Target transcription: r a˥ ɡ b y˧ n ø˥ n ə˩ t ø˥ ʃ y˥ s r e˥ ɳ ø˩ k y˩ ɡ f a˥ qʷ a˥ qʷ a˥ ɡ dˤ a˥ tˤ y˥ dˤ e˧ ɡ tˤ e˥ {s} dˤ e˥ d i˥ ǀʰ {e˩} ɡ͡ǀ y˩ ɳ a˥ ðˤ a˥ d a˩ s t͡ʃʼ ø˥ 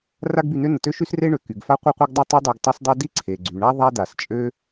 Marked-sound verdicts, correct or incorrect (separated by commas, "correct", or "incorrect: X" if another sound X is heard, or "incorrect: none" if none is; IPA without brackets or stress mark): correct, correct